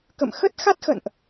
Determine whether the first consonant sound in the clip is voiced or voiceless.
voiceless